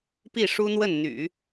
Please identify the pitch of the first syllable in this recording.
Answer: falling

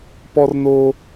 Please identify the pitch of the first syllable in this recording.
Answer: high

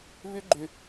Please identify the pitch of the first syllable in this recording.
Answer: high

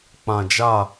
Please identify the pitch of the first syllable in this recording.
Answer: low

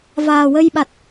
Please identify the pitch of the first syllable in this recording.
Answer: low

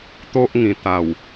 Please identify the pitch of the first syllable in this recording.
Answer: high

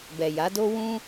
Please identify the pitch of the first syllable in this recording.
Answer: low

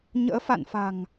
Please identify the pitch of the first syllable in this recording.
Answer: rising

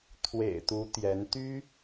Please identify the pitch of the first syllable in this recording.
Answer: low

